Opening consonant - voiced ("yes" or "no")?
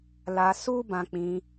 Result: yes